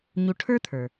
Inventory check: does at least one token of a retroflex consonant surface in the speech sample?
yes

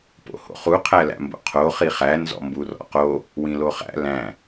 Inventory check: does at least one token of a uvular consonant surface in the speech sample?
yes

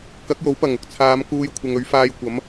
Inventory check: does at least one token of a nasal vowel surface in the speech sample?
no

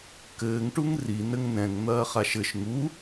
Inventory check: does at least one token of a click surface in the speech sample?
no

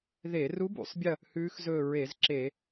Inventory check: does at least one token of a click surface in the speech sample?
yes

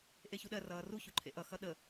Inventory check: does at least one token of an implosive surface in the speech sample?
yes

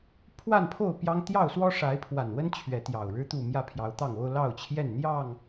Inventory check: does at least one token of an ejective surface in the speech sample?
no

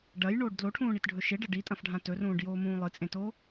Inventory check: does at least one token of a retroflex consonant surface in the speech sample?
yes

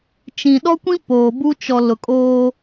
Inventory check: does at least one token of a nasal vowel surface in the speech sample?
yes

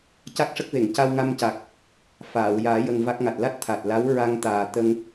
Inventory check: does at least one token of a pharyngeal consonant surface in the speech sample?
no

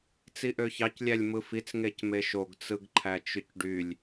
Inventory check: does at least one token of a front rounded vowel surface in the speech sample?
yes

